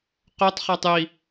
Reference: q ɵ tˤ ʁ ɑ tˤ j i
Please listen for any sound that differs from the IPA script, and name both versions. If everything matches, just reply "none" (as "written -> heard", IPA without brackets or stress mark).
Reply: ʁ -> χ